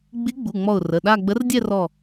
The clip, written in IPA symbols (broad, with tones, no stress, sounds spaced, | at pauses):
ɡ͡b i˧˥ ɡ͡b u˩˧˩ ŋ͡m ɔ˧˩ ʊ̯ r ə˩˧˩ ɗ a˥˧ ɡ͡b ə˧˥ r dʲ ɛ˥˧ r ɔ˧˩